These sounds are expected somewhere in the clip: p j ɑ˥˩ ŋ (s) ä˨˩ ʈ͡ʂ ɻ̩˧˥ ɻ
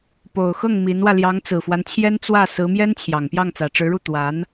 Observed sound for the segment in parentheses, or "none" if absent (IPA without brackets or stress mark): t͡s